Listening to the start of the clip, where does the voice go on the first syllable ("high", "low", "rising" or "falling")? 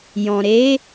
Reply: low